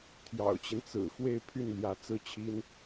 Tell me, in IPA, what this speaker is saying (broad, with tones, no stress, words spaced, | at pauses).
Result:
t̪ʰjɑ̰˨˩ʊ̯t͡ɕi˦n t͡sɹ̩˨˩ xwe˥˧ɪ̯pʰy˥˩n ljä˧˥t͡sɹ̩˥˩t͡ɕʰi˥n